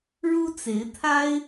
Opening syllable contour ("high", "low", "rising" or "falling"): high